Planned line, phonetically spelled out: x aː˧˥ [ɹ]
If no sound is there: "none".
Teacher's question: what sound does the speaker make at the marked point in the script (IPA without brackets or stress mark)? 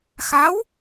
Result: w